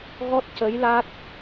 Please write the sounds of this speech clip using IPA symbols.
ɣɔ˦˥t̚cə˧˥jla˦˥t̚

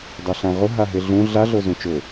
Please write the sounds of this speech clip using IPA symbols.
dˤɛɬãʁʊ ɦaɦɪɮũ ɮa ɮozũt͡ʃʊ

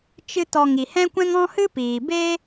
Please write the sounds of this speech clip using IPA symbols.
t͡ʃɨ˦tɔ˧ ŋi˨hɛ̃˦kʷɛ̃˦ŋ ɔ̃˦hɨ˦piː˨be˦

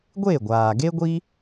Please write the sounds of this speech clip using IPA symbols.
ɡʷe˦˨ɡʷaː˨ɡe˦ɡʷi˦

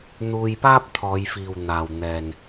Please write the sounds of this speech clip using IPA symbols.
n̪uː˧jpaː˥p̚t̪ʰɔː˨˧jfiː˨w n̪aː˨wn̪ɛː˨n

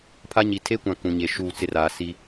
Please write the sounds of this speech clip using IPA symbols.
pʰa˦ɲi˨ tʰe˦ kʷã˦kũ˨ɲe˨ ʃuː˦˨t͡sɪ˦raː˨ si˦

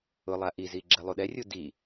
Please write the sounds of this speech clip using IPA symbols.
ʊlˠa ʔizi ɡ͡ǁɛlˠuɗɛrʲu di

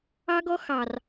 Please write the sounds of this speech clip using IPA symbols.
ɑ˦ɡɔ˦ xɑ˨r

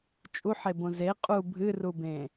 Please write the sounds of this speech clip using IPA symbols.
t͡ʃʼuħebõ ze qʼu bʱɨrubẽ

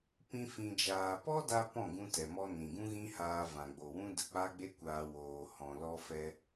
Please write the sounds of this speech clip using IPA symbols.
pĩ˦fĩ˧d͡ʒaː˧ pɔ˦da˧ pɔ̃˦˨ɡũ˧ tɛ˨mɔ˧ nĩ˨ɡũ˦ɣĩ˦haː˧ vã˨ɡ͡bo˨wũ˦ də˨k͡pa˦ɡ͡be˦kʷaː˧ woː˨hɔ̃˨ lɔ˧fɛ˧

